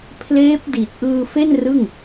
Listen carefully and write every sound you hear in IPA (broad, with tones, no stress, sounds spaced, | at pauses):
pʰ l eː˦˥ p̚ d i˨˩ t̚ ʔ ɯː˧ f e˥˩ n r ɯ˥˩ ŋ